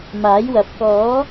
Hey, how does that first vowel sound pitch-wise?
rising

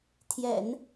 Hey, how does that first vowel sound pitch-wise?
low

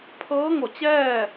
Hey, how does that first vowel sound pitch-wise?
rising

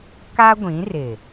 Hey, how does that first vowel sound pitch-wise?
high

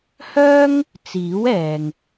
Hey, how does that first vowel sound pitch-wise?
high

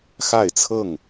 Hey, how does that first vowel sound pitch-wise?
falling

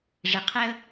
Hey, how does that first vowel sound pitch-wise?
low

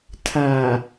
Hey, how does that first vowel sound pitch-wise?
low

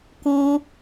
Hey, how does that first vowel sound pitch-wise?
high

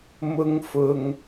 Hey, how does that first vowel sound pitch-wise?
high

